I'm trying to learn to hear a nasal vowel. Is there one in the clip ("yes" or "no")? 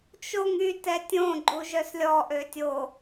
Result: yes